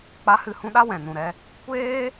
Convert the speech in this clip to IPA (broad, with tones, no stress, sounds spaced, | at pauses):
k͡p a˨˦ h ɨ˨ h ũ˧ ɗ a˦ w ɛ̃˨ n ũ˨ ɾ ɛ˧ | kʷ eː˦